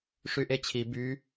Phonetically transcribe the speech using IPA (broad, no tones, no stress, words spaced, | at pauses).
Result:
ʂyʔet͡ɕʰi by